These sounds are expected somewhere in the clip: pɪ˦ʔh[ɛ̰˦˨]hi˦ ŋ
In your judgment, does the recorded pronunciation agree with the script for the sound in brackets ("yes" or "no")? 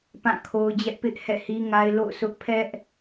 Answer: yes